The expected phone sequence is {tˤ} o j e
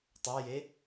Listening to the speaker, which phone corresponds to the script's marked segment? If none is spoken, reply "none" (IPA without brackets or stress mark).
tˤ